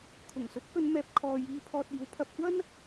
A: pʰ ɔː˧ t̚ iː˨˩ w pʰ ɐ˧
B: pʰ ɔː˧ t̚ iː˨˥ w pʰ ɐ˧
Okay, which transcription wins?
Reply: B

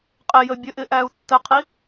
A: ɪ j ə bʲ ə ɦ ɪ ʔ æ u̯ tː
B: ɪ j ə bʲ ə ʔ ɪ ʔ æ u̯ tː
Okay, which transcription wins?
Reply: B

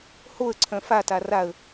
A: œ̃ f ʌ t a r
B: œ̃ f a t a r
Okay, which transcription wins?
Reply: B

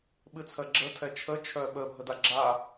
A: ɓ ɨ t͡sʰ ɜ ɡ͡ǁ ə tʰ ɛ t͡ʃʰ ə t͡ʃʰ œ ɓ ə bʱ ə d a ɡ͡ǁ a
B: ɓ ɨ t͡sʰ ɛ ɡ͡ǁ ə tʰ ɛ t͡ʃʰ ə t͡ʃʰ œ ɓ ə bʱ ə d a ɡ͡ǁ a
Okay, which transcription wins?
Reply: A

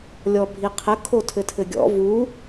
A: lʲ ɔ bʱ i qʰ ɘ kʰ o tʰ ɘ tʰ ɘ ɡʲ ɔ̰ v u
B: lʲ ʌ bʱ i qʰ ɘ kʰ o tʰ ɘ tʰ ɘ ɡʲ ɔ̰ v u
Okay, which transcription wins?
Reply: A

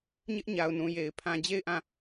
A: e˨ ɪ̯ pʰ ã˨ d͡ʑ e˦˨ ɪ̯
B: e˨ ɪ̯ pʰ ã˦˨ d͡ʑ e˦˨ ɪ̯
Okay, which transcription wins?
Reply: A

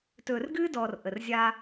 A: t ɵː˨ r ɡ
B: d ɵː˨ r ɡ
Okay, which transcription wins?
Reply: A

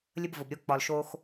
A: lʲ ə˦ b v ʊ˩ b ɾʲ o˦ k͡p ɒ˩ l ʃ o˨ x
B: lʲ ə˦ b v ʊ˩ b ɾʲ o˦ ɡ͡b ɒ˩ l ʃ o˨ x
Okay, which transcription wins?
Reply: A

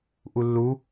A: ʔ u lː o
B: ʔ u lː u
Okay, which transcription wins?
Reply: B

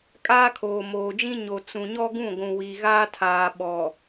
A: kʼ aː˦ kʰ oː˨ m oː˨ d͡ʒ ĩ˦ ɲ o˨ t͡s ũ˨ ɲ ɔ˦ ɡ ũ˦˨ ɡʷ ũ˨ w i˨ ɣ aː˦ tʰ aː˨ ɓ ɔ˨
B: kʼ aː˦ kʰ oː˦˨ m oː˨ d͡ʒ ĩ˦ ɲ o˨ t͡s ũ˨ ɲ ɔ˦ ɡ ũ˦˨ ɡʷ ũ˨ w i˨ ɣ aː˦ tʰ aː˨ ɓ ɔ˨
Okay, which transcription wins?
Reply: A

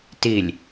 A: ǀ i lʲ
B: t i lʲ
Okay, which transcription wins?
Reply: B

